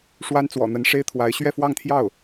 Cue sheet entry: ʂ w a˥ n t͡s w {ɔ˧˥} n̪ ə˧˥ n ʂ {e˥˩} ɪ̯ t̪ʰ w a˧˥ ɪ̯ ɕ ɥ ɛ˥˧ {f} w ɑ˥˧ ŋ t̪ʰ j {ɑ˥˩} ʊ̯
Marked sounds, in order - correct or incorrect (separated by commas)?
incorrect, incorrect, correct, correct